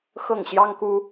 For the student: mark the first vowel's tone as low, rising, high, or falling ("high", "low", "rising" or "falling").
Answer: falling